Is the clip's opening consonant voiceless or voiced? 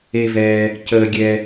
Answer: voiced